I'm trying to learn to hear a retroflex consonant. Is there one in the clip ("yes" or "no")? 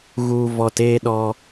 no